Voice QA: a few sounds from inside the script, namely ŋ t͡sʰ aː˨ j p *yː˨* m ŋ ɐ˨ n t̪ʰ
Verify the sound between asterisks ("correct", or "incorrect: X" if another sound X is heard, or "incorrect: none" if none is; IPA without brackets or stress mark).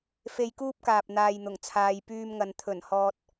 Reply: incorrect: yː˧